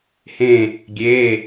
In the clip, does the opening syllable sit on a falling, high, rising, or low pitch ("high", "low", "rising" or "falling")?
falling